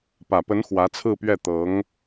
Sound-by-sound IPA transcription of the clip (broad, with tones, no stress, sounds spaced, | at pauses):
p ä˨˩ p ə˧˥ n x w ä˧˥ t͡sʰ ɹ̩˥˧ p ɥ ɛ˥˩ t̪ ɤ˧˥ ŋ